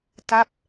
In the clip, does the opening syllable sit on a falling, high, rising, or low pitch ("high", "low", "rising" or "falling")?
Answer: falling